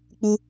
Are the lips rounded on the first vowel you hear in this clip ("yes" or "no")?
yes